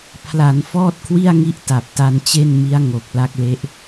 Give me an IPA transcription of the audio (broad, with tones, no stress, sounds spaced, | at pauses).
pʰ l a˩˦ n f ɔː˥˩ t̚ kʰ w i˥˩ a̯ ŋ i˦˥ ʔ t a˨˩ p̚ t a˧ n t͡ɕ e˥˩ n m i˦˥ a̯ ŋ o˨˩ k̚ l a˦˥ k̚ l e˦˥ ʔ